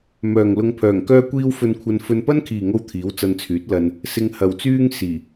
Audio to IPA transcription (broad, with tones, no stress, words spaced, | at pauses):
mœː˨ŋ lʊ˧ŋpʰœː˨˩ŋkœː˥kʷiː˥w fɵ˧nkʷʰɐ˧n fɵ˧npɐ˥nkʰiː˨ŋo˧w t̪ʰiː˨˥wt͡sɐ˧nt͡sʰyː˨˥t̚ lɐ˧n | sɪ˧ŋhɐ˨wt͡syː˥ŋ siː˨˩